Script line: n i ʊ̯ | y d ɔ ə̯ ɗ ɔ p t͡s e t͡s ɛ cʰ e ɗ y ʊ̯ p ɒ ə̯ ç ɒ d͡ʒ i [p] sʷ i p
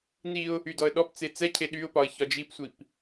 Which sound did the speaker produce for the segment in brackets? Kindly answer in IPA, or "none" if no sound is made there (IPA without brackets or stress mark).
p